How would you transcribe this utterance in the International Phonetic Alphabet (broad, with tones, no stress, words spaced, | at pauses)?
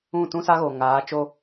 ũ˦˨tũ˦sa˦ɣo˨ ŋaː˨˦t͡ʃo˦